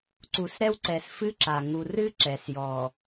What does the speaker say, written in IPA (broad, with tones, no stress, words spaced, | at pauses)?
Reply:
ǀu˨sɾɛ˦wǀɛ˨s fɨ˦ǁa˨ ŋu˨rɨ˦ ǁɛ˨sjɔ˨